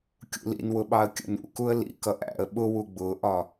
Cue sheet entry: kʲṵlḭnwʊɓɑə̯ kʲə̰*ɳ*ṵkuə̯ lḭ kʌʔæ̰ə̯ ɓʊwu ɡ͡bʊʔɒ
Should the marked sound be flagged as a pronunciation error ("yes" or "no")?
yes